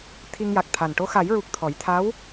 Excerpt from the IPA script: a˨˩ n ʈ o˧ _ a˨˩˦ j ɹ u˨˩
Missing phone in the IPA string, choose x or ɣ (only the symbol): x